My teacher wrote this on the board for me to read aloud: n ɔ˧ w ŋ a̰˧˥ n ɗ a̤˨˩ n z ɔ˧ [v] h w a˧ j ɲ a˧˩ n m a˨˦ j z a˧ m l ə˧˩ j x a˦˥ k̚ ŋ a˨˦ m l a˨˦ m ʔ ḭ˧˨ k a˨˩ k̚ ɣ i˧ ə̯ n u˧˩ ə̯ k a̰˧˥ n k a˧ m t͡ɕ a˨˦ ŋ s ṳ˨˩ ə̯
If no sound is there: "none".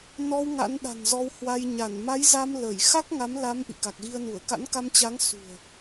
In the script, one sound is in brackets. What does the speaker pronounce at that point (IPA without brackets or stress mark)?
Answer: w